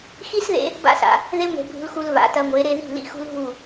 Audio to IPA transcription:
x i˦ s ð ḛ˧ | b a̰˦ s a̰˨ | ð e˦ ŋʷ e̤˧ bʱ ṳ˧ l x u˧ l v a̰˨ t ɐ˧ ŋʷ e˨˦ ɾ e˧ ð i̤˦˨ l ḭ˦ x ṳ˦ l ɦ u˦˨

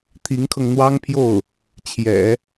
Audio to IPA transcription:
t̪ʰ i˧˥ ŋ kʰ ɤ˧ ŋ n̪ w ɑ˥ ŋ pʰ j o˥˩ ʊ̯ | t͡ɕʰ j ɛ̰˨˩˦

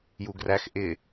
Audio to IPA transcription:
j u ɡ r æ x ʔ ɪ

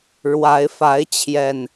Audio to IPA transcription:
ɻ w a˨˦ ɪ̯ f a˨˦ ɪ̯ t͡ɕʰ j ɛ˨˩ n

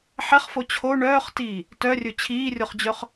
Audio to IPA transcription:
ħ ɛ χ f o t͡ɕʰ o ɳ œː χ t iː | t œ rʲ ɵ t͡ɕʰ iː rʲ o χ d͡ʑ œ χ

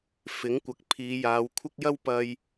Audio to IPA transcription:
f ɪ˨˥ ŋ kʷ ɐ˨˥ k̚ pʰ iː˨˧ j aː˨˧ w kʷʰ ɪ˥ k̚ j ɐ˥ w p ɐ˧ j

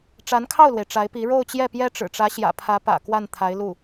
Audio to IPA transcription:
ʈ͡ʂ a˧˥ n kʰ ɑ˥˩ ʊ̯ l w e˩ ɪ̯ ʈ͡ʂ a˧˥ ɪ̯ p i˧˥ ɻ o˥˧ ʊ̯ t͡ɕ j ɛ˥˩ p j ɛ˥ ʈ͡ʂ ɻ̩˨˩ ʈ͡ʂ ä˧˥ ɕ j ä̰˨˩ pʰ ä˧˥ p ä̰˨˩ k w a˥˩ n t̪ʰ a˧˥ ɪ̯ l u˥˩

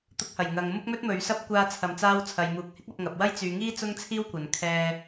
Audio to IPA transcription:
t̪ ʊ˧ k̚ h ɐ˨˩ j ŋ ɐ˨ ŋ m ʊ˥ k̚ m ɵ˥ t̚ m ɵ˨˧ ɥ s ɐ˥ p̚ kʷ aː˧ t͡sʰ ɐ˨˩ m t͡s aː˧ w t͡sʰ ɐ˨ j m uː˨˥ k̚ h ɪ˥ k̚ ɐ˧ p̚ ŋ ɐ˨ p̚ w ɐ˥ j t͡s yː˨˧ ŋ iː˥ t͡s ʊ˥ ŋ t͡sʰ iː˥ w kʷ ɐ˨ n kʰ ɛː˧

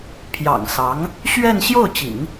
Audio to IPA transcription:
pʰ j ɑ̰˨˩ ŋ s ɑ˧˥ ŋ | ɕ ɥ ɛ˥˧ n ɕ j o˥˩ ʊ̯ t͡ɕ ḭ˨˩˦ ŋ

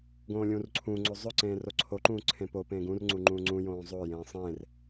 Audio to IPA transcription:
ɡ õː lʲ ũː r ǀʰ ũː ŋ͡ǀ o zˤ ɵ ǀ ẽː r o ǀʰ o ǃ ũː ǀʰ ẽ p o p ẽː ɡ ũ r ŋ͡ǀ u ŋ͡ǃ ũː ŋ͡ǀ ũ j õː zˤ o j ẽː sˤ ẽː r

